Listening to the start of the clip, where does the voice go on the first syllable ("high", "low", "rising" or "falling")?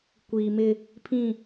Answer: low